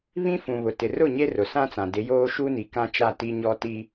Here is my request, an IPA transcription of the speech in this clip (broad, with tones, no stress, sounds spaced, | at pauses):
β ĩ˦ f ũ˨ β ʊ˨ t ɪ˨ r ʊ˦˨ ɲ e˦ r ʊ˨ s ã˦ t͡s ã˨ d ɪ˨˦ j oː˦ ʃ u˦ n i˨ k ã˦ t͡ʃ a˦˨ t i˦ ɲ ɔ˦ t i˦